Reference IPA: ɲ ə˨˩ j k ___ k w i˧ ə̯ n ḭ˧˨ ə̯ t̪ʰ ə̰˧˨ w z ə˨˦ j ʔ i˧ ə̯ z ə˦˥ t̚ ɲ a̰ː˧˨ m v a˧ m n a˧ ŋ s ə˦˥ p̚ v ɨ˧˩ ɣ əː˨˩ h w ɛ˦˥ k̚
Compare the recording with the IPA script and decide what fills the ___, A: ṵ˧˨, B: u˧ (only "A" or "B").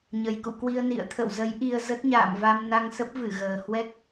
A